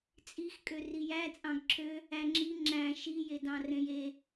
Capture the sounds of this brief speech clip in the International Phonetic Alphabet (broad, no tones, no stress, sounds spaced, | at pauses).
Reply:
t͡sʼ i x kʼ ø r i j æ t͡sʼ ɑ̃ ɡ ǁʰ ø | æ ŋ͡ǁ i ŋ͡ǁ æ̃ ʃ i j e d ɑ̃ r ẽ j e